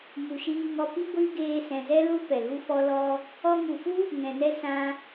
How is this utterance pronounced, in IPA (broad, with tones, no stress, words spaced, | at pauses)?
mu˨ʃiː˧ ŋɔ˧pi˦ ɡʷi˦ ɡeː˦sɛ̃˧ zɛ˦lu˦ pɛ˨ɣu˦fɔ˦ lɔ˦ | ɔ˧ŋu˨fu˦ | ŋɛ̃˨nɛ˦ sã˧